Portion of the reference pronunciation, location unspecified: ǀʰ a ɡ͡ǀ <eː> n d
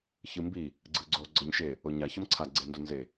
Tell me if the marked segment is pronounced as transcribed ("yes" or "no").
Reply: no